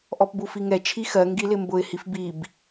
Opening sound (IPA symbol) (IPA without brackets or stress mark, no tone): ʔ